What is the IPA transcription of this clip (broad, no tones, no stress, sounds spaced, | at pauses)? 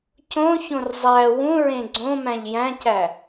c õ ç õ r zˤ æ w ũ ɹ ẽ ɡ͡ǀ õ m æ̃ ʎ j æ̃ c æ